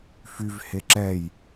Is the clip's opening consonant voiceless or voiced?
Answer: voiceless